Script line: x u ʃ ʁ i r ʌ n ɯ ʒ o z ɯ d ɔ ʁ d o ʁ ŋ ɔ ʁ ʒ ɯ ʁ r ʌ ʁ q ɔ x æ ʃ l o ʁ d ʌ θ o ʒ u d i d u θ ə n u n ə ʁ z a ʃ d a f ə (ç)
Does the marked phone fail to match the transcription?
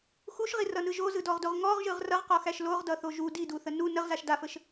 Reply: yes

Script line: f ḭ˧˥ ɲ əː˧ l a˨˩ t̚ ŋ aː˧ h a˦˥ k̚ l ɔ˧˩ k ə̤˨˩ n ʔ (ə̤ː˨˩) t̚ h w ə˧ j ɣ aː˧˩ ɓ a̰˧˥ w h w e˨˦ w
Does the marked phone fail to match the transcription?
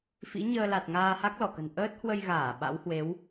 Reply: yes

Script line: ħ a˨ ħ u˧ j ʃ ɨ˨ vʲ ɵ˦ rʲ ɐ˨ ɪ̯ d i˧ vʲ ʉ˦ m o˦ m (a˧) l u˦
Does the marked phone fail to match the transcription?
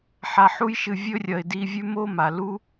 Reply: yes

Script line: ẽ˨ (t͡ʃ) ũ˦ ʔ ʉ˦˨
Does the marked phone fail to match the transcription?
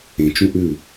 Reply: no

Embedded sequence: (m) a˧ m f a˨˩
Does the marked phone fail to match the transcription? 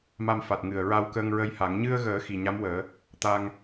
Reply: no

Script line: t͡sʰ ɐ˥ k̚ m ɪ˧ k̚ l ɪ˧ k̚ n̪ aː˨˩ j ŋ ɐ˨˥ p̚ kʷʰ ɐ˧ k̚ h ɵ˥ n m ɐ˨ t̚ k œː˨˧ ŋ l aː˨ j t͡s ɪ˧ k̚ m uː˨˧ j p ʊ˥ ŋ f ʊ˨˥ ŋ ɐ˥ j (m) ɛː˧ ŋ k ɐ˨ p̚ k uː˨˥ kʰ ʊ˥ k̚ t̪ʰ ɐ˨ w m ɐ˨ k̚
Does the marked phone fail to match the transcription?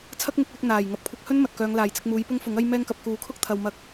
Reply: no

